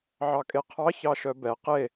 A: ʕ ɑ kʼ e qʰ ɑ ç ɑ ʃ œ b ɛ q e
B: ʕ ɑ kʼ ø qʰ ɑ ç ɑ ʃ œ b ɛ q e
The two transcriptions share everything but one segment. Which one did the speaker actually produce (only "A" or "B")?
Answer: A